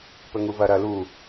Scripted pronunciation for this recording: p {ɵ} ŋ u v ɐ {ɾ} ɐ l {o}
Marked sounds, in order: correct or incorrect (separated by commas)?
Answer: correct, correct, incorrect